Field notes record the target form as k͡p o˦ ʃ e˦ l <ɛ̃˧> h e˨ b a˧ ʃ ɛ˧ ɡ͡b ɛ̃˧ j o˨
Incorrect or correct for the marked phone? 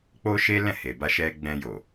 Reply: incorrect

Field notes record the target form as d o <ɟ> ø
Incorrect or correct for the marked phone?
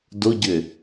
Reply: correct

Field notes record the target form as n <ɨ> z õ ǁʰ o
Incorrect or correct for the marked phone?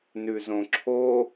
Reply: incorrect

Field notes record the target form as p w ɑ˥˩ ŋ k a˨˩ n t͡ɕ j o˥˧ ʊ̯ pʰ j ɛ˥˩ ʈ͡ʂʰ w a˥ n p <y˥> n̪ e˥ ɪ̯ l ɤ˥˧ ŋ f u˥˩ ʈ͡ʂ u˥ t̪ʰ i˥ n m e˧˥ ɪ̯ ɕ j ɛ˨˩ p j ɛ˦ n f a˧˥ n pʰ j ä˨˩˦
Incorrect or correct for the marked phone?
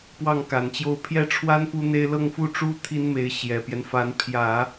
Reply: incorrect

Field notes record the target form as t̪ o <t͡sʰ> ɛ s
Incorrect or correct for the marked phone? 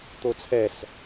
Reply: correct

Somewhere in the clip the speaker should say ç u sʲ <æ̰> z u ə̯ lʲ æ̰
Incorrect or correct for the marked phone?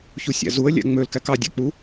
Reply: correct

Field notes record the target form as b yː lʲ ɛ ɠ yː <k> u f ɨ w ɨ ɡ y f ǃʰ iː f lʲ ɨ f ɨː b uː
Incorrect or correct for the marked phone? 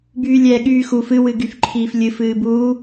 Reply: incorrect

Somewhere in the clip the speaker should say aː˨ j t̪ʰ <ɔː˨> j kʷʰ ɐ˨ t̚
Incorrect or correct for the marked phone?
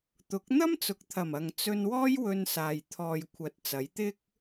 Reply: correct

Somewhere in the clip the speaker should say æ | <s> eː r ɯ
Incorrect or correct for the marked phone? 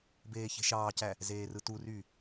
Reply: incorrect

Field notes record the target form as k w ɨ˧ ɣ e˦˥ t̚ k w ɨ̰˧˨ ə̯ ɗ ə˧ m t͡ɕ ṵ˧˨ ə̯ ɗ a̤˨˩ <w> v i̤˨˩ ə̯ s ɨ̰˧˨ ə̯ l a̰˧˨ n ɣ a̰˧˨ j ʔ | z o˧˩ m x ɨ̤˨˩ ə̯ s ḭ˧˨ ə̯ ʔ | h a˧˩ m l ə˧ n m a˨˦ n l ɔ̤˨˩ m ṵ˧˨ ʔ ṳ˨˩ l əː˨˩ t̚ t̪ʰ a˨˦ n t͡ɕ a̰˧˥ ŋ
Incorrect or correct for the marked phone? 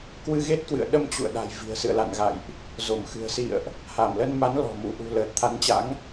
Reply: incorrect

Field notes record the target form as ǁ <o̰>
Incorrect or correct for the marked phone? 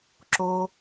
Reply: incorrect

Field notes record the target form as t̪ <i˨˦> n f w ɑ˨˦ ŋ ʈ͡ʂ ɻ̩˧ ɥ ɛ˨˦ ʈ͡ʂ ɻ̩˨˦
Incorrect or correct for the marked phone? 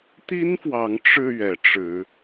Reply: incorrect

